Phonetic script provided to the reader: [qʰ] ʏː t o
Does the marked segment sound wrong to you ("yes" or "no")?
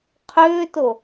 no